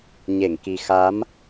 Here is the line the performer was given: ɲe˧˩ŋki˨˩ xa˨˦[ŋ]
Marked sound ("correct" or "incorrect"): incorrect